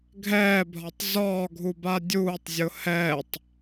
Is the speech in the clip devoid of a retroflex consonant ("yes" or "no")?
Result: yes